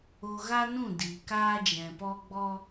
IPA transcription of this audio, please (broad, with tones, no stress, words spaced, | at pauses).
o˧ɣa˦nũ˦˨ diː˨ kaː˦d͡ʒɛ̃˨pɔ˦ ɡ͡bɔ˦